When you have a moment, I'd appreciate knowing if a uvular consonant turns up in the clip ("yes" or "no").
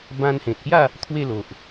no